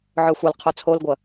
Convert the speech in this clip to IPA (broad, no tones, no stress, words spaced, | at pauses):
ʕœxʷɐlqʰo t͡sʰolɡʷɐ